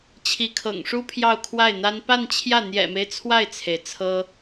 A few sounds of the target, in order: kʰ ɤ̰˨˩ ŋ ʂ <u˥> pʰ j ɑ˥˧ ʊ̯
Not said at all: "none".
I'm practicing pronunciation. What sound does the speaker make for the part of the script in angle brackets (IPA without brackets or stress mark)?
u˥